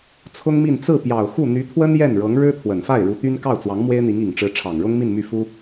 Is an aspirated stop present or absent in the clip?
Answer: present